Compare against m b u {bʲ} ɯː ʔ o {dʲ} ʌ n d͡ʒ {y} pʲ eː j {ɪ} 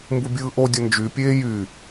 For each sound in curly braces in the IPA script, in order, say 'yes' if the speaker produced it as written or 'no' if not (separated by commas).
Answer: yes, yes, yes, no